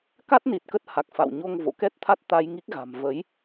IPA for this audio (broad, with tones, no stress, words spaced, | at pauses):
ka˦˥t̚ ni˨˩t̚kə˦˥t̚ha˨˩k̚ fa̰˧˨wɲo˧ŋ vo̰˧˨kɛ˦˥t̚t̪ʰa˦˥t̚t̪a˧j ŋi˦˥k̚ɣa̤˨˩m və˨˦j